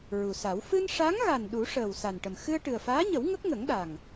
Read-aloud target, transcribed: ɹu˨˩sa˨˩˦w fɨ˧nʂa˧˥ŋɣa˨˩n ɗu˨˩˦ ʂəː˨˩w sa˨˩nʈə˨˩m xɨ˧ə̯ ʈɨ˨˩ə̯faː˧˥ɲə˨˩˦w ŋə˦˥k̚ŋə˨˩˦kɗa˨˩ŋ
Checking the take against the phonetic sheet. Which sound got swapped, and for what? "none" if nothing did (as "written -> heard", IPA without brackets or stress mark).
k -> ŋ